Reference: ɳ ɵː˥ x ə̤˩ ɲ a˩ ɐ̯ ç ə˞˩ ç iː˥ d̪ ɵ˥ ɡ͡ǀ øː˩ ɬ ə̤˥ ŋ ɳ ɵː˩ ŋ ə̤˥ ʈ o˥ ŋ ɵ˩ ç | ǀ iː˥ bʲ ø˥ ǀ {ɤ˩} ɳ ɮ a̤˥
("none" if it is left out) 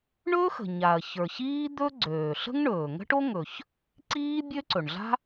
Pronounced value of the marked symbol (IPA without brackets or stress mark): ɵ˩